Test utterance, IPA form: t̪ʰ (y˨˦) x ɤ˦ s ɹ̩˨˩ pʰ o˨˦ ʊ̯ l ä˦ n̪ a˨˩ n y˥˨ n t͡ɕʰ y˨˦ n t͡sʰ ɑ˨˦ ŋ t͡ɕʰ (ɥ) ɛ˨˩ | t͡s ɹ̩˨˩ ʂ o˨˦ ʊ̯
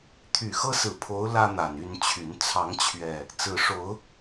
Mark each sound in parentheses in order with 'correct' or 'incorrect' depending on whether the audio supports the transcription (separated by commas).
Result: incorrect, correct